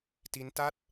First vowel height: high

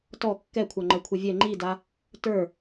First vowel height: mid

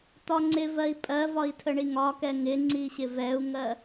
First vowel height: low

